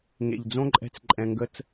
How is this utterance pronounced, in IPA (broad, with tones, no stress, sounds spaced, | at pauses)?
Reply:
ŋ ḛ˨ ʎ d͡z õ˦ ǃʼ ɛ̤˧ t͡s ǃʼ ɛ̃˧ ŋ ɡ ə˦ t͡s